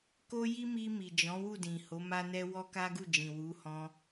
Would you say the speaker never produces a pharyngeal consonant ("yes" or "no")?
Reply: yes